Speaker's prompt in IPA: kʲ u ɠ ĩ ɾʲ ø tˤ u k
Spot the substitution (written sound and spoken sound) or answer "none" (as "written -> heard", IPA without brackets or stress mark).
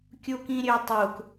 ɠ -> k